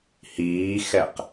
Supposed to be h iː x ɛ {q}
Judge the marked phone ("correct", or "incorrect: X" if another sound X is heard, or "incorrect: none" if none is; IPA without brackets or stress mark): correct